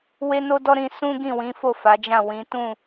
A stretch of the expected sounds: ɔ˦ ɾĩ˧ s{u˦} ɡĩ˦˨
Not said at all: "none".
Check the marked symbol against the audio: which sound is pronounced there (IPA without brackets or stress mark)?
ũ˦